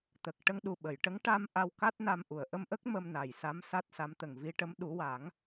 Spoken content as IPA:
t̪ ə˨˩ k̚ ʈ ə˧ ŋ ɗ u˨˩ ɓ ə˨˩˨ j ʈ ə˧˥ ŋ ʈ a˧ m ʔ a˧ w k a˦˥ t̚ n a˧ m ʔ u˨˩˨ ə̯ ʔ ə˧ m ʔ ə˦˥ k̚ m ə˧ m n a˨˩ j s a˧˥ m s a˦˥ t̚ s a˧˥ m t̪ ə˨˩ ŋ v i˧ ʈ ə˧˥ m ɗ u˨˩˦ w a˨˩˦ ŋ

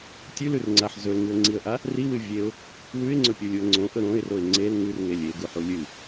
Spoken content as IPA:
tʲ ʉ l ʉ r ŋ͡ǀ a ħ z ɵ l ŋ ɨ ə̯ ŋ͡ǀ i ə̯ ʔ a | r i w ɨ vʲ e ʊ̯ | w ʉ ɪ̯ ŋ͡ǀ ɵ pʲ u lʲ u ə̯ ŋ͡ǀ õ ʔ ɵ ɾ õ ɪ̯ r o ɪ̯ ŋ͡ǀ e l ŋ ʉ r ŋ e lʲ e ɡ u ħ u lʲ ɨ

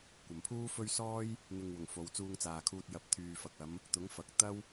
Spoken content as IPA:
kʷ ɐ˨ m pʰ uː˥ f ɵ˥ ɥ s ɔː˥ j | n̪ ɪ˨ ŋ w ʊ˨˩ ŋ f o˨˧ w t͡s uː˧ ŋ t͡s aː˨ kʰ uː˧ t̚ j ɐ˨˥ p̚ t̪ʰ yː˨ f ɐ˨ k̚ ɐ˨˧ m | t̪ ʊ˨˥ ŋ f ɐ˨ k̚ t̪ ɐ˥ w

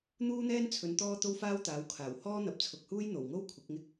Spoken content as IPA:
n̪ uː˥ n̪ ɛː˥ n t͡sʰ ɵ˨˧ n t̪ ɔː˥ t̪ o˥ w f aː˥ w t̪ aː˨˥ w kʰ aː˨˩ w h ɔː˥ n̪ ɐ˨ p̚ t͡sʰ ʊ˨ k̚ h uː˥ j n̪ o˨˩ w ŋ o˥ w kʷʰ ɪ˨˥ k̚ ŋ ɪ˥ k̚

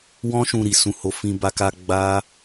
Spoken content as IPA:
w ɔ̃˦ ʃ ũ˧ ɾ i˨ s ũ˧ h o˧ f ĩ˧ b a˧ k a˧ ɡ͡b a˦

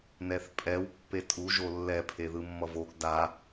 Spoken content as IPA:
n ɛ θ pʼ ɛ w pː e tʼ u ʒ o lː ɛ pʰ e ð ɯ mː ʌ v o ɡ d a

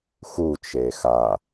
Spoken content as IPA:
x u t͡ʃ e x a

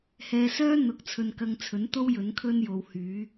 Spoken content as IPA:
h ɛː˧ s œː˥ n̪ ʊ˨ k̚ t͡sʰ ɵ˧ n k ɐ˧ ŋ t͡sʰ ɵ˨˥ n t̪ o˥ w j ɵ˨˥ n kʰ ɵ˥ n j o˨ w h yː˨˥

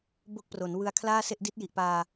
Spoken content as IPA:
b o˥˩ k̚ p r o˩˦ n w ɯ˧ a̯ kʰ l aː˥˩ s e˥˩ ʔ d i˦˥ t̚ j i˨˩ ʔ p aː˧

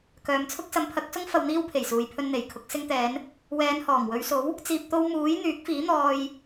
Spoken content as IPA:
k œː˨ m t͡sʰ ʊ˥ k̚ s ɐ˨˧ m pʰ ɐ˨˥ k̚ s ʊ˥ ŋ f ɐ˧ w n̪ iː˥ w pʰ e˨˩ j s uː˨ j pʰ ɵ˧ n n̪ e˨ j kʰ ʊ˨˥ k̚ s ɪ˧ ŋ t̪ ɛː˨˧ n | w ɛː˨˧ n h ɔː˨˩ ŋ w ɵ˨˧ ɥ s o˨˥ w | t͡s iː˧ p̚ t̪ o˥ w m uː˨˥ j n̪ yː˨˥ k̚ f iː˨˥ n̪ ɔː˧ j

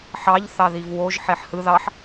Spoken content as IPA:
ħ ɑ ʎ θ ɑ ð i v w o ʒ ħ e ħ h ɯ ð ɑ ħ

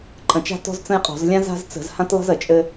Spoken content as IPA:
ǃʼ ə̃˧˩˧ t͡ʃ a̤˦ t ɔ̤˦ z t͡s ə̃˦ j qʼ ɔ̤˧˩˧ z lʲ ã˦ z a̤˦ z t͡s ə̤˧˩˧ z h ã˦ t lˠ ə̤˦ z ə˧˩˧ t͡ʃʼ ɘ˦

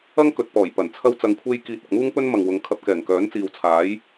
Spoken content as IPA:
ɐ˥ ŋ k ɵ˨ t̚ p ɔː˨˩ j p ɐ˨˩ n t͡sʰ ɐ˥ w t͡s ɐ˧ ŋ kʷʰ e˥ j k iː˧ t̚ ɐ˨ k̚ m uː˥ ŋ p ɵ˥ n m ɐ˨ ŋ w ʊ˨˧ ŋ kʰ ɐ˧ p̚ k ɛː˨˩ ŋ k œː˨˥ n t͡s iː˨ w t͡sʰ aː˨˥ j

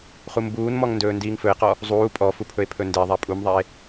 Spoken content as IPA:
χ u m b uː n m ɔ ŋ n d ɵː n d iː ŋ f ɵ e̯ q ɔ | zˤ uː pʼ ɔ f u pʰ ɵ e̯ pʰ ɵ n d e ðˤ a pʼ u m ðˤ a e̯

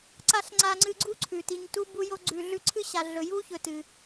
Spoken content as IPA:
ǀ a˥ ɬ ŋ͡ǀ a˦ ŋ͡ǀ ɨ˦ ɡ͡ǀ u˥ ǀʰ ʉ˩ t i˨ ɲ t u˦ b u˦ j o˦ ɡ͡ǀ ʉ˨ ɮ ʉ˦ ǀʰ ɨ˥ ɕ a˨ ɮ ɵ˨ j u˥ ç ɵ˨ t ɨ˩

